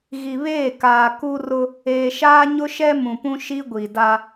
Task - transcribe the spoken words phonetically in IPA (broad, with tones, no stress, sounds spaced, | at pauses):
ɣ i˨ β eː˦˨ k aː˨ k u˦ r ʊ˦ | eː˨ ʃ aː˦ ɲ ʊ˦ ʃ ɛ˦ m ũ˨ p ũ˦ ʃ i˦ ɡʷ i˨ d a˦